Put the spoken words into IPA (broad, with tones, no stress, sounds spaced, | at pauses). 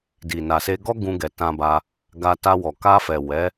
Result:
d i˨ n a˨ s e˧ ɡ ɔ˦ ɡ ũ˧ ɡ ɛ˨ t ã˧ b a˧ | ɡ a˧ t a˧ w ɔ˨ k a˧ f ɛ˨ w ɛ˨˦